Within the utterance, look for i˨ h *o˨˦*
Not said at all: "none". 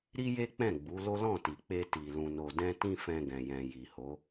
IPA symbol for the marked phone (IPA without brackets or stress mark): o˨˦